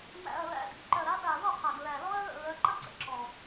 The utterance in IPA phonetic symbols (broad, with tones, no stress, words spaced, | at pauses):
mæ̰˨˩ɐ̯ɹæ̰˨˦ dḭ˨˦ǃœ˨˩ɾa˨˦ɗa˨˩ ðɔ˥˩qʰæ˨˩ɡɹæ˨˩ lɔ˦˥ɐ̯ɹə̰˥˩ɹœ˨˦ ǃə˥˩ǀə̰˨˩ ǁɔ˨˩